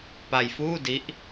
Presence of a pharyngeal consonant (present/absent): absent